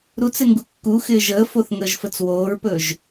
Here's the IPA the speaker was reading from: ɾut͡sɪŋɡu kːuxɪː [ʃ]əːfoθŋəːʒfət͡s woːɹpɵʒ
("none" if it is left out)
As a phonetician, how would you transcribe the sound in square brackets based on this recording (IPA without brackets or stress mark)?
ʒ